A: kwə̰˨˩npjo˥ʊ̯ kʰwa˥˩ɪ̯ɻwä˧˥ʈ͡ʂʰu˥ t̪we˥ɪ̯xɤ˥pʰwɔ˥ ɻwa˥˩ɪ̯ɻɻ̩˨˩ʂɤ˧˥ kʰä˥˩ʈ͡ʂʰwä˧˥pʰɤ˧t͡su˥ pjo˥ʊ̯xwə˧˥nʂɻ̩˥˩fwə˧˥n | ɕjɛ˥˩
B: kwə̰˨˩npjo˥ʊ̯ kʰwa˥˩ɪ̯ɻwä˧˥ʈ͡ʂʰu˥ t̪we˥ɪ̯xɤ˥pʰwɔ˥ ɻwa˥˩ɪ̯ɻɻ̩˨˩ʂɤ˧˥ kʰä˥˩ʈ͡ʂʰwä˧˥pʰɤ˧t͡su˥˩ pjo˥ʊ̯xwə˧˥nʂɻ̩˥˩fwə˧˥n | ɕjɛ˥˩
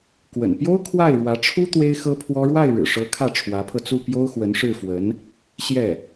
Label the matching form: B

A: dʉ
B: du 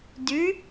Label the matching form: A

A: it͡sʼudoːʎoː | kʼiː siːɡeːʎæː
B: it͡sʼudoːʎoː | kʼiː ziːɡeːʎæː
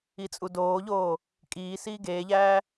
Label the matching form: A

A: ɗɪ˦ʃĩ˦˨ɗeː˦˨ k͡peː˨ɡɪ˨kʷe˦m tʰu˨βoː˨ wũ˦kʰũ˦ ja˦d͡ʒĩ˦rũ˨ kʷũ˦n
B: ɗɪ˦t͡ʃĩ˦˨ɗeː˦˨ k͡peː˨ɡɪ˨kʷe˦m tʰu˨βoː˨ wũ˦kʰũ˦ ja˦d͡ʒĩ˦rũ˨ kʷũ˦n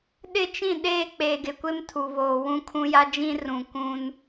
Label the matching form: B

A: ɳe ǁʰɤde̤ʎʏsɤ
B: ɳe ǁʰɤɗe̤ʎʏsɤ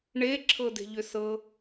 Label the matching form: A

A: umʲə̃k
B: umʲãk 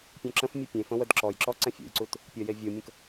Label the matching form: A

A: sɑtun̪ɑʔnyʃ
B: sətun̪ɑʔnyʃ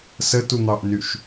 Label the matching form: B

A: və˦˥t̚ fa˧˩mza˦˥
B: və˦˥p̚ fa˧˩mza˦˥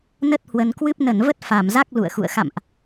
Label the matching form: A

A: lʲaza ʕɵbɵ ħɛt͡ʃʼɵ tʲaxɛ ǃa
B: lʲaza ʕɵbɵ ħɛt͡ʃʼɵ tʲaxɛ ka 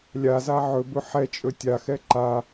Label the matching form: A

